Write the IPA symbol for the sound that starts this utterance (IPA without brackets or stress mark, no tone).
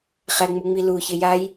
χ